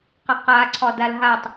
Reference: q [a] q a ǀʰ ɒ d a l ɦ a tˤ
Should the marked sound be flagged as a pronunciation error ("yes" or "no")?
yes